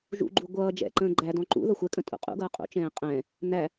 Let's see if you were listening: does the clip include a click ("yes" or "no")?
yes